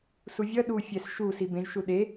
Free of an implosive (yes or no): no